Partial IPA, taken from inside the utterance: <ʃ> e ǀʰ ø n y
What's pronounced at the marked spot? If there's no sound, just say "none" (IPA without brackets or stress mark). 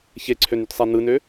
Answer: ç